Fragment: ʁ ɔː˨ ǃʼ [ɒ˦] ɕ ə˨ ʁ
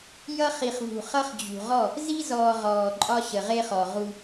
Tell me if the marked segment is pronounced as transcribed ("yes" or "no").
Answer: yes